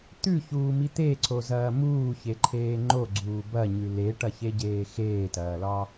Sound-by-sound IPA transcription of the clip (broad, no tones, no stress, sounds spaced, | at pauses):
t̪ ʉ ç uː m i t̪ e ǀ o z ɐː m uː ç e ǃʰ eː ŋ͡ǃ o ɡ͡ǀ uː b ɐ ɲ ʉ l e ʈ ɐ ç e ɟ eː x eː t ɐː l ɒ